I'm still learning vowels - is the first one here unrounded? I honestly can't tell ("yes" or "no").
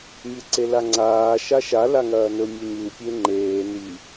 yes